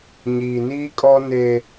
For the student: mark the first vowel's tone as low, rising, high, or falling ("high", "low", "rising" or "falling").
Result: low